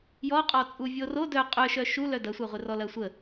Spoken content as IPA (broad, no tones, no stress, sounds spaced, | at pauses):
j ɔ qʼ ɔ t͡sʼ u vʲ o r o d œ qʼ œ ʃ œ ʃ u l œ d ɐ sʷ œ ʁʷ ɪ r ɔ l ɐ sʷ ə